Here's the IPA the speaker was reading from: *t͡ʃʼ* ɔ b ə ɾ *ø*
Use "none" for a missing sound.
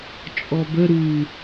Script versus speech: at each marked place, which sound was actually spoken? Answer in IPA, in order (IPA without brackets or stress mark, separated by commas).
t͡ʃʼ, u